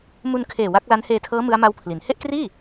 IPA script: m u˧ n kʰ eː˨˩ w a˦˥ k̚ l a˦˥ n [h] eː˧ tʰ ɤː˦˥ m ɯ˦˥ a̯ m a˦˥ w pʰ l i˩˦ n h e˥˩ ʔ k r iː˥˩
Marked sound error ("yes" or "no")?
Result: no